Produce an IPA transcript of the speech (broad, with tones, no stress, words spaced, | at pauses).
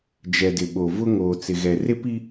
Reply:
d͡ʒɛ˨dɪ˨ɓo˨vʊ˦ ŋoː˨t͡sɪ˨ ɣɛ˨ rɪ˦pi˦